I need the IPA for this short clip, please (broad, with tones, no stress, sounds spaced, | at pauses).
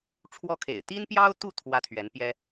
ʈ͡ʂʰ w ɔ˥ kʰ ḛ˨˩ ɪ̯ t̪ i˥ n p j ɑ˥ ʊ̯ t̪ u˥˩ t̪ʰ w ä˥ t̪ʰ ɥ ɛ˧˥ n p j ɛ˥